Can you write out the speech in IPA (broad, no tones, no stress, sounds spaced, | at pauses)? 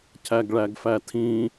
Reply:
cʰ æ ɡ ɭ æ ɡ f æ tʰ ĩ